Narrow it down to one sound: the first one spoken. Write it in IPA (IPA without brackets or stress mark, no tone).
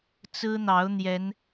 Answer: t͡s